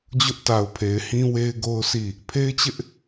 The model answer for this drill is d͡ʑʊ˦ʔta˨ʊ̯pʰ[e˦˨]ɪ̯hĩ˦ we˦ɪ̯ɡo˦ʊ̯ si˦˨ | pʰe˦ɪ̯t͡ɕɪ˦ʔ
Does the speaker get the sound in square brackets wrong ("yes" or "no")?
yes